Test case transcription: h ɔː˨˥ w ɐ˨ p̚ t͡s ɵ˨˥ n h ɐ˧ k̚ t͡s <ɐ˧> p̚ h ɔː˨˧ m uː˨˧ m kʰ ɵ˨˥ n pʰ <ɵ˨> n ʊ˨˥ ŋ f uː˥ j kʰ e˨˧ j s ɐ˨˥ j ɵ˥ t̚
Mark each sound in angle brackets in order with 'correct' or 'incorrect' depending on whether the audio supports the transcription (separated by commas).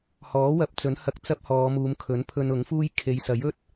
incorrect, incorrect